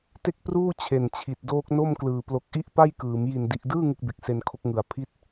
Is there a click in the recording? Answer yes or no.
no